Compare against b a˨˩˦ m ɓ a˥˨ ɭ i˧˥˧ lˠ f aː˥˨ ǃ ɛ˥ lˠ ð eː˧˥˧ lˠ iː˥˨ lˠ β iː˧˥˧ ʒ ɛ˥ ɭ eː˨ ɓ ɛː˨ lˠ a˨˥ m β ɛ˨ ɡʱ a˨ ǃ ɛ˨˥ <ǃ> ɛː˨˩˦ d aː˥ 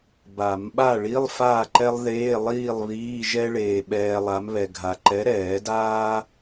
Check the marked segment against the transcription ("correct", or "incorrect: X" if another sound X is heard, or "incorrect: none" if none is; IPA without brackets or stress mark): incorrect: ɾ